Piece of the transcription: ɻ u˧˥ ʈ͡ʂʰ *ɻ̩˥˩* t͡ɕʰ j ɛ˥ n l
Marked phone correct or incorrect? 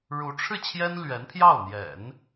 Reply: correct